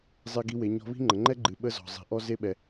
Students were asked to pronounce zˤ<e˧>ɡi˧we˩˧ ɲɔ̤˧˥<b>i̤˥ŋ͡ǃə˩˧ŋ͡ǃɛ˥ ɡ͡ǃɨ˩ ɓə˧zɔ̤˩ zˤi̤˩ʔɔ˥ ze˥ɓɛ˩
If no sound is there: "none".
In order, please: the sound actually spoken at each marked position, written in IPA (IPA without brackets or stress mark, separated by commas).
e˧, β